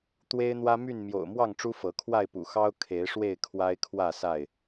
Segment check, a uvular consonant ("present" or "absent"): absent